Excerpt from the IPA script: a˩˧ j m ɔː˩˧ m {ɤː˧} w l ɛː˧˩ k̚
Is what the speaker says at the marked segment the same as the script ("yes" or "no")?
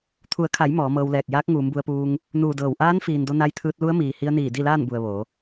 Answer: yes